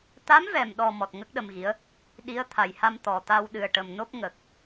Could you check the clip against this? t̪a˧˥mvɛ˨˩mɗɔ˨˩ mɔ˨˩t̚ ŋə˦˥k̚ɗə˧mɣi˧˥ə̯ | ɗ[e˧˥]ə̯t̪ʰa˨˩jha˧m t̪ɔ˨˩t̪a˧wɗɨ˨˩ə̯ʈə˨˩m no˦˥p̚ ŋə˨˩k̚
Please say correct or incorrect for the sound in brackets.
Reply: incorrect